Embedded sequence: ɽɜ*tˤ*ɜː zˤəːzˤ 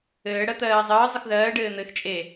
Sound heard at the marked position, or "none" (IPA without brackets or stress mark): t̪